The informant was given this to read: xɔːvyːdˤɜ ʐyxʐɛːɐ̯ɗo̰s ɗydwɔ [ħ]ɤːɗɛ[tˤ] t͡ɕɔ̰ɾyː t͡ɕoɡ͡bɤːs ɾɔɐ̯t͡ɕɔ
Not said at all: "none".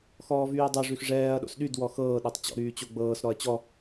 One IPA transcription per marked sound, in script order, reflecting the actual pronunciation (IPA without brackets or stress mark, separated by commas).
x, tˤ